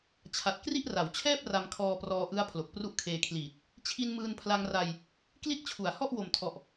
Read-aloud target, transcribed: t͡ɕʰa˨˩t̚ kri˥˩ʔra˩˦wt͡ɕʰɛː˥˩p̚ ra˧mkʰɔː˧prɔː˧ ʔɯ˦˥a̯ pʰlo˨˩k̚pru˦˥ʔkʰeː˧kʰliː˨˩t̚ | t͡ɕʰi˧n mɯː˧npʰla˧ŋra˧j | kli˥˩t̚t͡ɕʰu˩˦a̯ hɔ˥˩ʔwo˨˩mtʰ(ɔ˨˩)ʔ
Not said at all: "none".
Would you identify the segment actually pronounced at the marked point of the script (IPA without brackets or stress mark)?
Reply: ɔ˨˩